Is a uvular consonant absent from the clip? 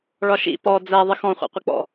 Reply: no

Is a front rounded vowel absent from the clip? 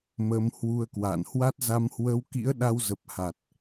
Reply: yes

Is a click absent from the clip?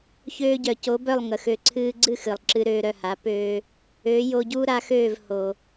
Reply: no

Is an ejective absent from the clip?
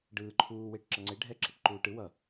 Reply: yes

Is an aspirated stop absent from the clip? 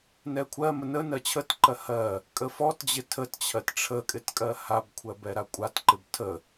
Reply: no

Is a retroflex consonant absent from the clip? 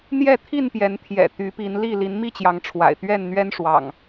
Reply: no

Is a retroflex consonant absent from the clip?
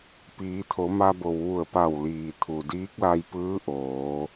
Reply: yes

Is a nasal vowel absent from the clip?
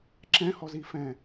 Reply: no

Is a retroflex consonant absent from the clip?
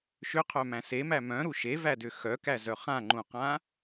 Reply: yes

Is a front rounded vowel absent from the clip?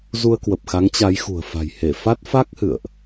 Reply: yes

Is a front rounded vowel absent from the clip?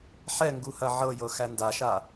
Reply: yes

